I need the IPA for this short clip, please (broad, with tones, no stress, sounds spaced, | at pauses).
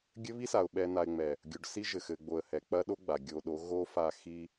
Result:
ɡʲ ɘ˦ β i˦ s a˨ ʊ̯ ɓ ɛ˨ n a˨ ɪ̯ ŋ͡m ɛ˨ | ɡʲ o˨ ɖ s i˦ ʒ ɘ˨ x ɘ˨ ɡ͡b o˨ ə̯ h ɛ˨ k͡p ɐ˦ ɗ o˦ ɡ͡b a˨ ɡʲ o˨ ɗ o˨˦ ɣ o˦ f a˦˨ x i˦